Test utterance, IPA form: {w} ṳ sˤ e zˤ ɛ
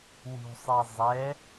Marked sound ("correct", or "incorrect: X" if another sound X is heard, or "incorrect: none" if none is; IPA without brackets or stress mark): correct